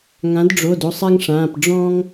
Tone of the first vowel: rising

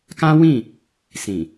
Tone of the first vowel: high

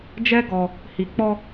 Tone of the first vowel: high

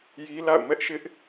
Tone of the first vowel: high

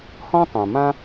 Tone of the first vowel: high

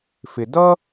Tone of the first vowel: low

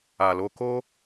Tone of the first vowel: low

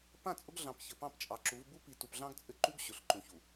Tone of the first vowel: falling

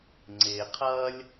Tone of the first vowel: low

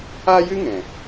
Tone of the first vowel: high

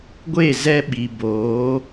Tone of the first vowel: falling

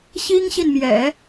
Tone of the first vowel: high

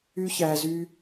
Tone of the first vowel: high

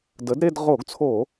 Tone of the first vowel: rising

